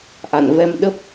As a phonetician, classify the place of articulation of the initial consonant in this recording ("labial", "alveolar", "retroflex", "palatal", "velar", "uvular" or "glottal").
glottal